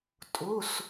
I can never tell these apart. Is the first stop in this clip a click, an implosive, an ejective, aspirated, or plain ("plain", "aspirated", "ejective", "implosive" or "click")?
ejective